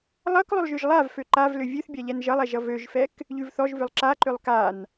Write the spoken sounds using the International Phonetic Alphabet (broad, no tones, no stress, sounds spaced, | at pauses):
lˠ ʌ k lˠ ʏ lˠ ʒ ʏ ʒ lˠ a v f ø ǃ a v l ʏ vʲ ʉ θ bʲ a ʎ ɛ n ʒ ʌ lˠ ɛ ʒ ʌ v ø ʒ f ɛ k | ʎ ʉ v θ ɔ ʒ v ʏ lˠ ǁ a ǃ ʏ lˠ k a n